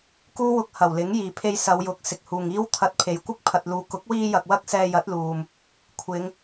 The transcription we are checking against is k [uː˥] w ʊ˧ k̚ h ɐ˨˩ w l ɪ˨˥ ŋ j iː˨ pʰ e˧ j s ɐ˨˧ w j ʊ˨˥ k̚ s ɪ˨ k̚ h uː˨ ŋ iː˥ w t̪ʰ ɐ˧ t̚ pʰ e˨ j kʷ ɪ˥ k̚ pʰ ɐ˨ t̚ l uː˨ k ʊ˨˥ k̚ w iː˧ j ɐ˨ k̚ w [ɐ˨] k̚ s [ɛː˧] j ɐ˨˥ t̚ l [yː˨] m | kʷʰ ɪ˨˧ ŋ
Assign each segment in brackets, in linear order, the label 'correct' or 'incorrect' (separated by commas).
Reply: correct, incorrect, correct, incorrect